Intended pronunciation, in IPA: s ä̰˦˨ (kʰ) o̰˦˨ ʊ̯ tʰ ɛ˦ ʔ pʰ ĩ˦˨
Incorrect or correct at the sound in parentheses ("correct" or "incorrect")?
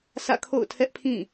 correct